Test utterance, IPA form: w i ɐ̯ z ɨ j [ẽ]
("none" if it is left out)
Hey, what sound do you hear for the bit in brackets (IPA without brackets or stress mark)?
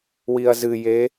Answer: e